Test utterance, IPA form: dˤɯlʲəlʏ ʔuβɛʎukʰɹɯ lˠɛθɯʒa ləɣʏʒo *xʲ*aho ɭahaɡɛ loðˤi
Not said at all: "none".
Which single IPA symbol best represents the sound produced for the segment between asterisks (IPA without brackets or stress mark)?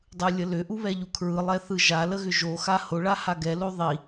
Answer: x